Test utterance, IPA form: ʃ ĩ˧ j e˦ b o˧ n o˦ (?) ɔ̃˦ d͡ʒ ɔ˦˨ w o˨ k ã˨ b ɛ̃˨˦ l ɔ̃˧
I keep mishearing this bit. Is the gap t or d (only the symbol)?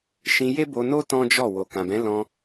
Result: t